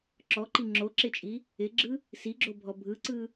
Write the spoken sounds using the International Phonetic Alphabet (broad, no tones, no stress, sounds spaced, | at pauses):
ǁ ɔ ǃ i ŋ͡ǁ o ǁ ɪ t͡ʃʼ i | ɪ ɡ͡ǁ ɯ | s i ɡ͡ǁ o bʱ ɔ bʱ ɯ ǀ ɯ